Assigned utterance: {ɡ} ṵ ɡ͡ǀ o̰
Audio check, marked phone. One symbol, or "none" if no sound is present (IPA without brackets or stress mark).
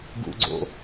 ɡ